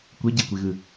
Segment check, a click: absent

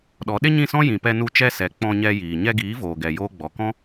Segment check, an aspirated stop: absent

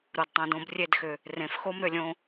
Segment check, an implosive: absent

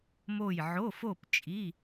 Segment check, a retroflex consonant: absent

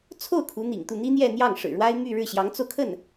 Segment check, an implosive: absent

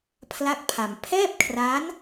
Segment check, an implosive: absent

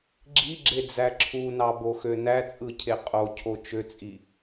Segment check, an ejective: present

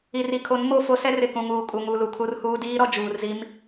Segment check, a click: absent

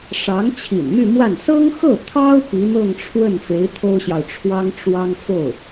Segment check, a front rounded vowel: present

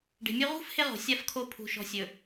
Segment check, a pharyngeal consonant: absent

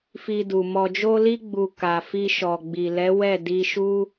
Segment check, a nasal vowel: absent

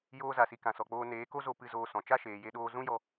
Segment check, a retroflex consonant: absent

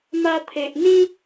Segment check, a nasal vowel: present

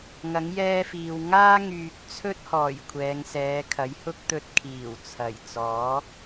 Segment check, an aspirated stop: present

